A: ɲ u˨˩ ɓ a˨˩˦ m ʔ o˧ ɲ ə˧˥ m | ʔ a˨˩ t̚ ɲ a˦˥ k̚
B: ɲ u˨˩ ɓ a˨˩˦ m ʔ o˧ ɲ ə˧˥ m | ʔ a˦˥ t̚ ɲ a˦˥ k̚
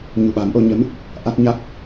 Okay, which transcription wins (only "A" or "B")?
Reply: B